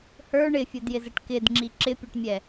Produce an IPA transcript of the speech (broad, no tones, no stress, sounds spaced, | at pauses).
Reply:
h ə˞ ɳ ɪ fʲ ʊ d j ɪ z ə ʈ k ɪ d ŋ͡ǁ i ǁ ɪ pʲ ʌ ʈ mʲ ɛ